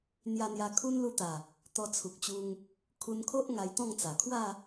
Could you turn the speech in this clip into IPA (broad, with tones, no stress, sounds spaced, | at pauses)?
n̪ j a˧ n̪ j a˧ kʰ u˦ n l u˧ t̪ a˨˩ | t̪ ɔ˧ t͡sʰ u˨ k̚ t͡ɕ u˧ ŋ | kʰ u˧ n kʰ o˦ ʔ ŋ a˧ j t̪ ɔ̃˥˧ ŋ t͡s a˨˩ kʰ w a˥˧